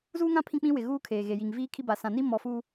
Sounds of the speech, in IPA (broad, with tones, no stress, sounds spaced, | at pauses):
z uː˦ ŋ ã˦ pʰ ĩ˦ k͡p ĩ˦ w ɪ˨ ɣ uː˦ kʰ eː˨ ɣ e˨ j i˨ ŋ v iː˦ kʰ i˦ b a˨ s ã˨ n i˦ m ɔ˦ f uː˦